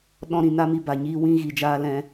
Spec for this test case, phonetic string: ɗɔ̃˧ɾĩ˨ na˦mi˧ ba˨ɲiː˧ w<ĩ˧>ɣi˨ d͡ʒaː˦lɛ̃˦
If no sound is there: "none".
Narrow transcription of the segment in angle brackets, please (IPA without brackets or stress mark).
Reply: ĩ˧